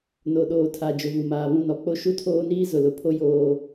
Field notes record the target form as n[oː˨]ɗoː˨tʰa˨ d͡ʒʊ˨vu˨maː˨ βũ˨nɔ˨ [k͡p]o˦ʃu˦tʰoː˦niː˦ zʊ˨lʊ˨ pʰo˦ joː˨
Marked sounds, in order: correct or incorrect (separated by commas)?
incorrect, correct